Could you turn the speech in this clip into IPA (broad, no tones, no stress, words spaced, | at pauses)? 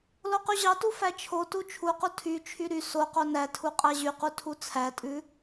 loqyʑɑtu fæt͡ʃʰotu t͡ʃʰuqu tʰyt͡ʃʰy ɾy soqo nætʰu qʼæʑyqu tʰut͡sʰætʼʉ